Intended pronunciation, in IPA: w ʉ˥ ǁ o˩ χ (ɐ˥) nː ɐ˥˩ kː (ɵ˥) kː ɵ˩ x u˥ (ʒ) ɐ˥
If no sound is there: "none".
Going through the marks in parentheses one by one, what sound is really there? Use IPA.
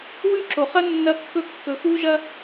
ɐ˥, ɵ˥, ʒ

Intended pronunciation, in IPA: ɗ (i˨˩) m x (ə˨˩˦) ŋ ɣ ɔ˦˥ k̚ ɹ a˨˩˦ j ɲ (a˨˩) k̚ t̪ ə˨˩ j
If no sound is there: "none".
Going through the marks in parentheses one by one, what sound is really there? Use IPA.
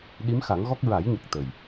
i˧˥, a˨˩˦, ə˨˩

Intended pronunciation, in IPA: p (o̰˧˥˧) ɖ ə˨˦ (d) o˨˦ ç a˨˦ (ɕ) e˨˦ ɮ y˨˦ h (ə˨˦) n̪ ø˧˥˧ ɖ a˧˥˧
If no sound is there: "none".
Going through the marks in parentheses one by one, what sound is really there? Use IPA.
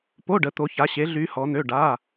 o˧˥˧, t̪, ɕ, ɔ˨˦

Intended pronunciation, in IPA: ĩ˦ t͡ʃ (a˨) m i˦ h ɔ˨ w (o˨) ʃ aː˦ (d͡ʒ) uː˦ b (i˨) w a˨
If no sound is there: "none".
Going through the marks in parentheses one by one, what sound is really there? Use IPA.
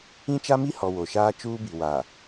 a˦, o˨, t͡ʃ, i˨

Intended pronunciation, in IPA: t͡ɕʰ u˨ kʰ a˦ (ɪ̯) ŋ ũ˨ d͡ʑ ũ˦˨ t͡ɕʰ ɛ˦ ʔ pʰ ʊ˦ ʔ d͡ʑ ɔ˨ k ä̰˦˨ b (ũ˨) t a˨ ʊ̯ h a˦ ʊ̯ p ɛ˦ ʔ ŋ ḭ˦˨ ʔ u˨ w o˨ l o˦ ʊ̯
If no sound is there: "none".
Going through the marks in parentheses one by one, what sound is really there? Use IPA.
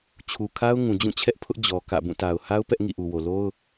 ʊ̯, ũ˦˨

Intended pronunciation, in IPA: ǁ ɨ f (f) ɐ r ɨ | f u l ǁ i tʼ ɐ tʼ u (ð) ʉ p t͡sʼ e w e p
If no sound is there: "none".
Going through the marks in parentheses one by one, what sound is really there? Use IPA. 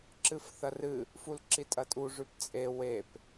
θ, ʐ

